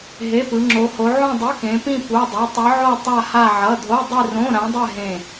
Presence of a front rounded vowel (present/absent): absent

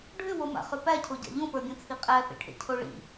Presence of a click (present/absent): absent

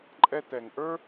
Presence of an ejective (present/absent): present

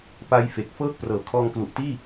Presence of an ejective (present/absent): absent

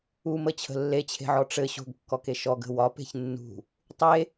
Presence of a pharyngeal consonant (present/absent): present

